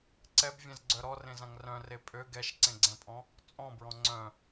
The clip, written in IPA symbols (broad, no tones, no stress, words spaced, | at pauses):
ǀɛbvʲɛ̃zɡ͡ǀœ ɾɔrẽzãŋ rœ̃re pʼø ɡɛʃǀẽɡ͡ǀɛ̃pʼɔ̃ | t͡sʼɔ̃bɹɔ̃ ŋ͡ǀœ̃